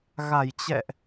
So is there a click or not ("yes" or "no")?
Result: no